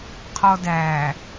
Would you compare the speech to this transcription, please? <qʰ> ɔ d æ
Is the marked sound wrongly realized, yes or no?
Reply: no